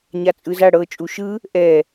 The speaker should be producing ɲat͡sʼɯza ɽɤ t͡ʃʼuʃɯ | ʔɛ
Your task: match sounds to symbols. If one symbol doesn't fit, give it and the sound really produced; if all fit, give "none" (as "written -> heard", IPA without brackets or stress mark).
none